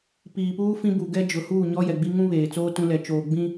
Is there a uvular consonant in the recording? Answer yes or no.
no